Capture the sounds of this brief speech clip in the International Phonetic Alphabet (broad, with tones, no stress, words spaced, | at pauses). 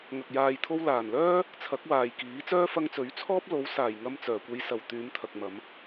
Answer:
ŋɐ˨k̚ jaː˨jt̪ʰo˧wlaː˨˩nlœː˥ | t͡sʰɐ˨˥k̚waː˨j kiː˨˥t͡sœː˥ fɐ˧ŋt͡sɵ˨˥ɥt͡sʰɔː˥p̚ lo˨˥wsaː˨˩jŋɐ˧m t͡sœː˨˩kʷe˨˧jsɐ˨˩w t̪yː˨˧mt̪ʰɐ˨k̚ mɐ˨˧m